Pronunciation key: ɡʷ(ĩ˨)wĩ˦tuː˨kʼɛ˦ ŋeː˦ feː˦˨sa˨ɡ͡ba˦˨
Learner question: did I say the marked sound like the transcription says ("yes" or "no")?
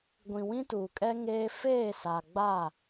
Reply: yes